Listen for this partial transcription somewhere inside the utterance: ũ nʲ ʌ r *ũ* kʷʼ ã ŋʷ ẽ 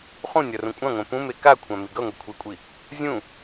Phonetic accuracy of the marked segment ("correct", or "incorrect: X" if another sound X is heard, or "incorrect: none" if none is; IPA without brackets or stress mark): correct